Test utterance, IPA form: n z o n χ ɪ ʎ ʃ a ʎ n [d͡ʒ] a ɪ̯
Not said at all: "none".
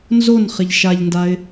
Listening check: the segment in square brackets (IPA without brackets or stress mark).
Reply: d